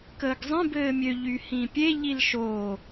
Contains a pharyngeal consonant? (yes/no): no